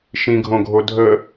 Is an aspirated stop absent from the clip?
yes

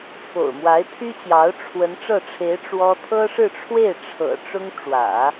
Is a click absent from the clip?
yes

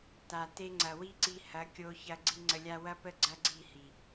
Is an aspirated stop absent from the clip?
yes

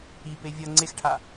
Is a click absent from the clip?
no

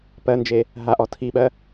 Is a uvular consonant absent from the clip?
yes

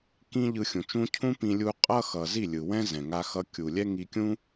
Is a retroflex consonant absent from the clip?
yes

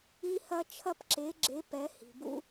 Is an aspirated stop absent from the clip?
no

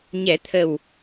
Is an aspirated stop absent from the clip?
no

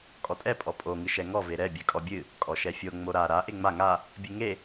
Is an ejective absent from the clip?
no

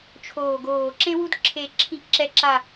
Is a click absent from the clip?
no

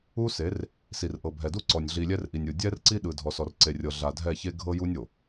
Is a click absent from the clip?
no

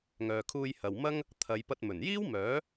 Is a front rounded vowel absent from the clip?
no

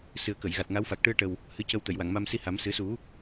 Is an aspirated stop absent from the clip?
yes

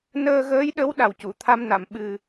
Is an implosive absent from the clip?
no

